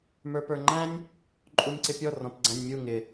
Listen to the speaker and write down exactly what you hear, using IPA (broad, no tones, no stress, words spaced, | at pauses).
mə˞pə˞ŋ͡ǃæ̃nʲ | ǃʼunʲǀɪpʲɔ rɔ̃pɡ͡ǀæ̃nʲmʲu ŋɪ